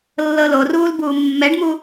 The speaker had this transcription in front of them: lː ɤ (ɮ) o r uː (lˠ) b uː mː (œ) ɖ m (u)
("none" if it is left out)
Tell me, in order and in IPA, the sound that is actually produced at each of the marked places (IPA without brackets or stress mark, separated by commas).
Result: l, l, ɛ, u